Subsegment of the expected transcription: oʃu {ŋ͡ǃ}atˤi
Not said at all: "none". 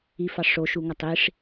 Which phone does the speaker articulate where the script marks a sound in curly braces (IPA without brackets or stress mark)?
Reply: ŋ